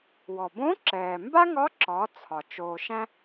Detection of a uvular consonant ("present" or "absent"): absent